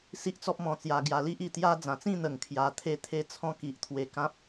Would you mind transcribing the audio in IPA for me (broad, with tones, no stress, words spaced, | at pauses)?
si˦ʔt͡sɔ˦p̚ mɔ̃˧t͡sja˧ɡja˧ li˦ʔi˨˩t̪ja˦ d͡zã˨˩t͡sĩ˥˧n̪ə˨˩ŋ kʰja˧t̪ʰe˥˧ t̪ʰe˥˧t͡sʰɔ̃˦ ki˨ʔt̪ʰwe˧kã˦p̚